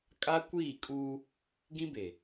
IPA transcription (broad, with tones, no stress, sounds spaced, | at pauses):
kʼ a˦ kʷ iː˦˨ kʼ uː˦ | ɡ ĩ˦ b e˨